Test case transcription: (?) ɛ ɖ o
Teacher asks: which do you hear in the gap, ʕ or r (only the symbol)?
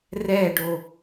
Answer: r